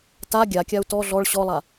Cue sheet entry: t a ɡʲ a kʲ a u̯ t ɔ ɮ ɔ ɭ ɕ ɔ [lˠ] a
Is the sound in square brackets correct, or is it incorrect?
correct